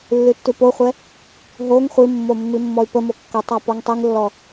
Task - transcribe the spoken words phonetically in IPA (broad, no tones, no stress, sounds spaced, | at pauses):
lː ʉ tː ʉ p o χʷ ɛ | ɦ o ŋ χʷ i mː o mː i mː ɔ y̯ p ə m o kː ə tˤ a p ɔ ŋ tˤ i ŋ lː ɔ